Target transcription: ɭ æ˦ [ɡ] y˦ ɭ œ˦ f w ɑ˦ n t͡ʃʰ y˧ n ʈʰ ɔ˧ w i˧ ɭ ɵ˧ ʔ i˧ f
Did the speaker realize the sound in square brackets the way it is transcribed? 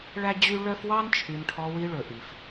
no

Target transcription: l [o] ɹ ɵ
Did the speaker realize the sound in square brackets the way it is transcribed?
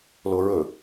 yes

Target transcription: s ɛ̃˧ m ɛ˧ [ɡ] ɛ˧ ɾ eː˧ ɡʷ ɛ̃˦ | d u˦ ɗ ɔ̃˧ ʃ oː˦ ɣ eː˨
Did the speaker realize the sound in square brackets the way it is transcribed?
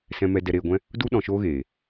no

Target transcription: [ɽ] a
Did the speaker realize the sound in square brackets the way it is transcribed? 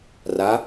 no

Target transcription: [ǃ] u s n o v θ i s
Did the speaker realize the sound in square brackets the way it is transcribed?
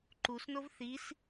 yes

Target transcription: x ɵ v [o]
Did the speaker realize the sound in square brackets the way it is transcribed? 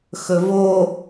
yes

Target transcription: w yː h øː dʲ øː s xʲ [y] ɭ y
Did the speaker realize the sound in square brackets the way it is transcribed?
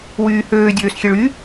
no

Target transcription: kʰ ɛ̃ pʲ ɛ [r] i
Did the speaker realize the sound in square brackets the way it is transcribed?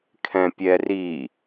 yes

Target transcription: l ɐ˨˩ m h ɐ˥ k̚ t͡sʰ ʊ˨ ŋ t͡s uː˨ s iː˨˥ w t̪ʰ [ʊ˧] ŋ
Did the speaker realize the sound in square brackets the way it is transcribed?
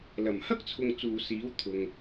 no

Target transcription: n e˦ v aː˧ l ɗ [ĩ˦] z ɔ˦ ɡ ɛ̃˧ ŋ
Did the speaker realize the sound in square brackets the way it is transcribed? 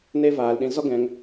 no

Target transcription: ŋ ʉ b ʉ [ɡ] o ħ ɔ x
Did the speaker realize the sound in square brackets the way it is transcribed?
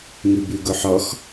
yes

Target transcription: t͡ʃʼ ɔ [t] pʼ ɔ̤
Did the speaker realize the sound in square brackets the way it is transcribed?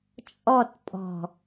yes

